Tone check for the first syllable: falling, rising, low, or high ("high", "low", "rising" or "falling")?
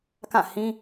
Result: falling